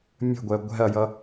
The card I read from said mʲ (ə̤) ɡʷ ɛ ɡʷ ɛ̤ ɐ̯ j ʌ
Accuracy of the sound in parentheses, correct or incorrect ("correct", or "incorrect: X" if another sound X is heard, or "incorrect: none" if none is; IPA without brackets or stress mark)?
correct